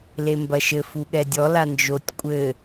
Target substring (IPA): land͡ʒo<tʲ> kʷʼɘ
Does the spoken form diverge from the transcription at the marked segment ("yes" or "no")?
no